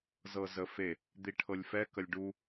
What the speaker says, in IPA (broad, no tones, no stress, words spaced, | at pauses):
zɤzəfe | d̪iʈʰɤlʲfɛ kəlʲɖu